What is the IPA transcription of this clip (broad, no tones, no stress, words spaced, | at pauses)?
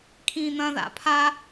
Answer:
kʰĩːn̪ɐ̃ða̰ pʰa